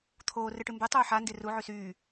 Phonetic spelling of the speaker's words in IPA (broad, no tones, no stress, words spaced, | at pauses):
t̪ʰoː rɨʈɨmbe tˤuːħa nderu ʕysyː